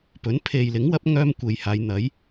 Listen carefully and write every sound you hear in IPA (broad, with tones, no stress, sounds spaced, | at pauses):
p ɵ˨˥ n pʰ e˨ j l ɪ˨˥ ŋ w ɐ˨˥ p̚ ŋ œː˥ m kʷ e˨ j h aː˨˧ j n̪ ɐ˨˥ j